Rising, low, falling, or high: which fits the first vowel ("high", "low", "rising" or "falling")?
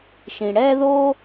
low